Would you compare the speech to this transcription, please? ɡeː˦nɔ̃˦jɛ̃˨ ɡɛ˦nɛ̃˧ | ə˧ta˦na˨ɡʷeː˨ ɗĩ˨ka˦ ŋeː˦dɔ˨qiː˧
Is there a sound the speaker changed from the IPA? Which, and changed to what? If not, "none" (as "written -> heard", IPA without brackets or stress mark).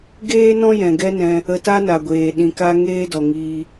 q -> ŋ